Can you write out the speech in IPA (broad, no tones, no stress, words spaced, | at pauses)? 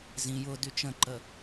zĩ jʊ dyt͡ʃə̃ǃə